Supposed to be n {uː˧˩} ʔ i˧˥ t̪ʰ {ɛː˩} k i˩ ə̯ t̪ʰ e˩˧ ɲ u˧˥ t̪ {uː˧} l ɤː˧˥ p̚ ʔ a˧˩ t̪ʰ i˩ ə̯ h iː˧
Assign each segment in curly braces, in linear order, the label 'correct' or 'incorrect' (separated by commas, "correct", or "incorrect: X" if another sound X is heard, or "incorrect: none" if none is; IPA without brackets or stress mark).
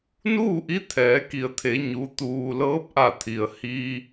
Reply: incorrect: uː˥˨, incorrect: ɛː˩˧, correct